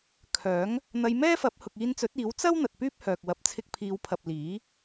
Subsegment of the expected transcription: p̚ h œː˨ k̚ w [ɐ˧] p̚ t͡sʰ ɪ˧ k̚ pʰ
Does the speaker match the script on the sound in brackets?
no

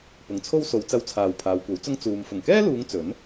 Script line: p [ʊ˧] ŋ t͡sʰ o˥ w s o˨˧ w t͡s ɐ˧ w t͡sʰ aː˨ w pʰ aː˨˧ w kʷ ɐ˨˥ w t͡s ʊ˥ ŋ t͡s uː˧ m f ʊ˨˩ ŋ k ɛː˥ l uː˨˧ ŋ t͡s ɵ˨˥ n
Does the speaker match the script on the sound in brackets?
no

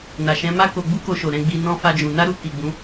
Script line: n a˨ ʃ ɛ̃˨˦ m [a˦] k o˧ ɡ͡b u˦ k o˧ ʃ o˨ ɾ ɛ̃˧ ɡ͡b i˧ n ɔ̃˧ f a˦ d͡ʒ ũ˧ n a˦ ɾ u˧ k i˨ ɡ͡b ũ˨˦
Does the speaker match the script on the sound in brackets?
yes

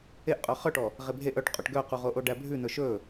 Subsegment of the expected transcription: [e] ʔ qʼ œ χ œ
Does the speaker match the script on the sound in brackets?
yes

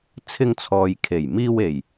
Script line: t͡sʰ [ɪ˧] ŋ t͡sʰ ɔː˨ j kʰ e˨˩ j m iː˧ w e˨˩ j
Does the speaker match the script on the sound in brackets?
yes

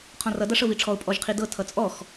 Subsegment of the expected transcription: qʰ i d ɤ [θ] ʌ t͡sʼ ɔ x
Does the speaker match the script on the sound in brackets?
no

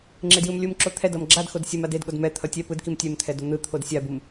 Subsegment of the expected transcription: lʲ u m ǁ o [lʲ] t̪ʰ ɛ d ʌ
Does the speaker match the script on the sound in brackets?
no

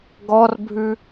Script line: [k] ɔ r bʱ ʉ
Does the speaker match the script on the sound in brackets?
no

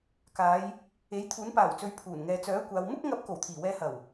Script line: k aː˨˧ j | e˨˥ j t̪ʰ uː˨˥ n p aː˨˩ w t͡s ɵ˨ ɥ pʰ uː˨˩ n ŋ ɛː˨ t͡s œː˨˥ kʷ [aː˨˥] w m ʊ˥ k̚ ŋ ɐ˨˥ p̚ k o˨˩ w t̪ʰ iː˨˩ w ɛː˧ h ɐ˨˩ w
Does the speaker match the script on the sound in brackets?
no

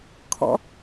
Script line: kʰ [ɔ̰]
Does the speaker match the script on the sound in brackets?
yes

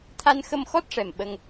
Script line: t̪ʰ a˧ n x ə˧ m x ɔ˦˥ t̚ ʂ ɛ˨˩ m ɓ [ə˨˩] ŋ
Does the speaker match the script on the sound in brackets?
no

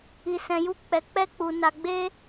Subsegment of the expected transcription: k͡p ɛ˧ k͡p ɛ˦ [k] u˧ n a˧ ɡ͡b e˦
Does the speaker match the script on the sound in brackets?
no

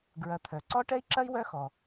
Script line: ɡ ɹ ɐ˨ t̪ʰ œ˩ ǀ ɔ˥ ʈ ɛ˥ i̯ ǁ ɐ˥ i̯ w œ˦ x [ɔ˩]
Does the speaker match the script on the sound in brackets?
yes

